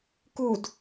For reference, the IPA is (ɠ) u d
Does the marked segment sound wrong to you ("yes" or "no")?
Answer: yes